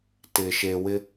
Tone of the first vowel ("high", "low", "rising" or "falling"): low